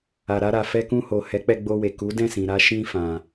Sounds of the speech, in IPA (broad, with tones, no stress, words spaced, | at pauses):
a˨ɾa˧ɾa˨ fɛ˧kũ˧ho˨ hɛ˨˦k͡pɛ˧ɡ͡bo˧we˨ ku˨˦dɛ̃˦˨sĩ˨ ɾa˧ ʃĩ˧fã˨